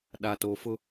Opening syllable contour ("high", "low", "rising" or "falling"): low